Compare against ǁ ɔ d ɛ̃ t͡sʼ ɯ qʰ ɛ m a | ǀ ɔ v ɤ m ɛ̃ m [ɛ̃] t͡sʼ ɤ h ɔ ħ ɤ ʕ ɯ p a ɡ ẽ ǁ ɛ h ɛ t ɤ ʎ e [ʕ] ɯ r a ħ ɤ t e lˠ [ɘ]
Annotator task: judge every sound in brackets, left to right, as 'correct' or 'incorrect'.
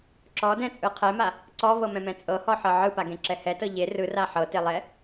correct, incorrect: r, incorrect: ɛ

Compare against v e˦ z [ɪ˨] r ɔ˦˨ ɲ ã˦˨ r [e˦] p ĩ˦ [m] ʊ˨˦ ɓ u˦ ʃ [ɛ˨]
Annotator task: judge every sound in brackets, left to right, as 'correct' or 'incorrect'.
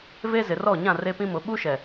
correct, correct, correct, correct

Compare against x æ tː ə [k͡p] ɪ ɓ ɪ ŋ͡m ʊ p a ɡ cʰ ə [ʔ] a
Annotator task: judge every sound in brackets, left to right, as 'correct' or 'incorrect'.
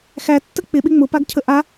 correct, correct

